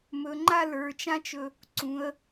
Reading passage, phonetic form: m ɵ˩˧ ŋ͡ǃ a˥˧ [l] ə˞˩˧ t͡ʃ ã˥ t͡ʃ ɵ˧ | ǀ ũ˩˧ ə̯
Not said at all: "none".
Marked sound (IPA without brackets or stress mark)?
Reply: l